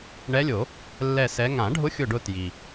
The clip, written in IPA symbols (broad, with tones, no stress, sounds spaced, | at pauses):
ɳ ɛ˧˥ lʲ o˨˩˦ | lː ɛ˦˨ s ɛ˧˥ ŋ ã˨˩˦ ɖʱ ʊ˧˥ xʲ ʊ˦˨ ɖ ʊ˦˨ t j i˩